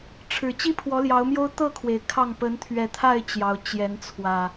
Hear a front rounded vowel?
no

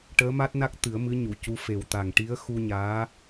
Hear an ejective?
no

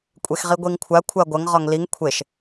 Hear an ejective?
yes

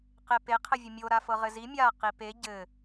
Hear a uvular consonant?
yes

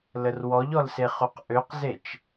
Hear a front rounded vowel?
yes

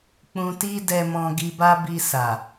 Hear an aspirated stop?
no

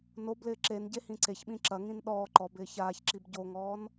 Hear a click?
yes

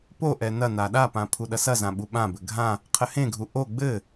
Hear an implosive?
yes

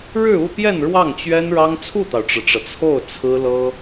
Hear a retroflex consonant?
yes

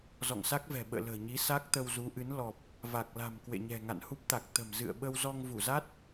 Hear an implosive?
yes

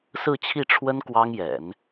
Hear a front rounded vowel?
no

